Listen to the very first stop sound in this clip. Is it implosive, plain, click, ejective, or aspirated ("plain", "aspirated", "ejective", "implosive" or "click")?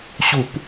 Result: plain